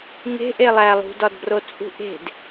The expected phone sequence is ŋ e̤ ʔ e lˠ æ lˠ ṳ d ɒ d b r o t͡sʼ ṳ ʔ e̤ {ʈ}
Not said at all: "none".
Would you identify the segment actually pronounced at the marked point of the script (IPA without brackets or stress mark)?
d